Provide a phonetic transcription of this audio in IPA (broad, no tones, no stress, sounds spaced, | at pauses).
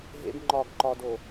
ɦ ḛ b ŋ͡ǃ ɒ ɡ ǃ ɒ d o